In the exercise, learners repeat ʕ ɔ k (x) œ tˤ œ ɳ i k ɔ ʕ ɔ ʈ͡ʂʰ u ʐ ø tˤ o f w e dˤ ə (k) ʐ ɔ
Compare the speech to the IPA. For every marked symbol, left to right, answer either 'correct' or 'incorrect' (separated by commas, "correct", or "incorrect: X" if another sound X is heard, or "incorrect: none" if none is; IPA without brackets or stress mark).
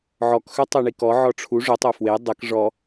correct, correct